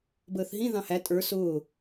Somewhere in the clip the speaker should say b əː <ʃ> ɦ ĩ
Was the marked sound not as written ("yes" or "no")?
yes